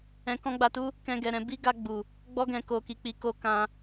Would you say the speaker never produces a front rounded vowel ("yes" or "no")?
yes